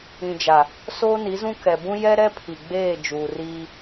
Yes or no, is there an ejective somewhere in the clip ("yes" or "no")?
no